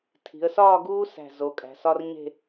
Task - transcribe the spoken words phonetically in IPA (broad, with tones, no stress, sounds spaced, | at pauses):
tʰ i̤˩˧ ə̯ s ɒː˥˧ ɡ uː˥ s æ̤˧˩ z o˩˧ kʼ æ̤˩˧ s ɒ˥ r ɲ e̤˥˧